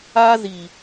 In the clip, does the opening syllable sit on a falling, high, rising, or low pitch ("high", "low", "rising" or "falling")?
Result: high